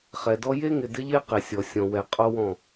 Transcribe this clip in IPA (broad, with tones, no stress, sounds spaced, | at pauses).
χ ɛ˨ d ɔ˦ j e˦ ŋ ɪ˨ d ɪ˦ ʎ e˦ q e˨ sʲ ɔ˨ sʲ ɔ̃˨ w ɛ˨ qʼ o˦ w ɔ̃˦˨